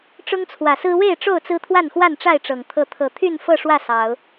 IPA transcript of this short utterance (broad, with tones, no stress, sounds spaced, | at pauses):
ʈ͡ʂ ʊ˦ ŋ t͡sʰ w ä˨˩ s ɹ̩˦ w e˥˨ ɪ̯ ʈ͡ʂ o˥˨ ʊ̯ t͡s ɹ̩˦ t̪ʰ w a˥˨ n x w a˥˨ n ʈ͡ʂ a˥˨ ɪ̯ ʈ͡ʂ ɤ˨˩ ŋ t̪ʰ ɤ˨˦ t̪ʰ ɤ˨˩ t̪ʰ y˥˨ n f ɤ˥˨ ʂ w ä˥˨ s ɑ˨˦ ʊ̯